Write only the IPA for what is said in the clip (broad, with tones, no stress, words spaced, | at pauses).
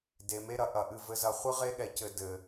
de˨me˦ɾɐ˨ ʔɐ˨ʔɨ˨ vɘ˨zɐ˨χʷɨ˦ ʁe˦ɠɛ˨ cɘ˨ dɘ˨